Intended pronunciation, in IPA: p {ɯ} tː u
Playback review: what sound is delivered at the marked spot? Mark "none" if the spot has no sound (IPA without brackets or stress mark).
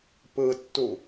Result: ɯ